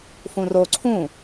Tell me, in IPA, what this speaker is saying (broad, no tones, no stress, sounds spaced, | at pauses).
f ũ r o ǀʰ ũ